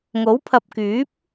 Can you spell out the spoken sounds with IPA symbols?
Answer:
ŋ o˨˥ w pʰ ɐ˨ p̚ k yː˨˥ p̚

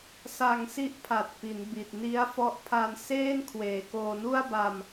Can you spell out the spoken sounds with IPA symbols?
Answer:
s a˧ ŋ s i˦˥ ʔ pʰ a˨˩ t̚ p i˩˦ n b i˨˩ t̚ n i˦˥ a̯ f ɔ˦˥ ʔ pʰ a˧ n s eː˥˩ n kʰ w eː˨˩ k oː˧ n u˥˩ a̯ b a˧ m

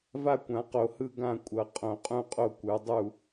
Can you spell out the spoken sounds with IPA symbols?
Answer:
v a˥˨ kʷ ã˨˩˦ q o˨˩˦ h ɯ˥˨ ɡ ã˥˨ kʷʼ ʌ˨˩˦ qʼ õ˨˩˦ qʼ ũ˥˨ qʼ o˥˨ kʷ ɯ˨˩˦ dˤ u˥˨

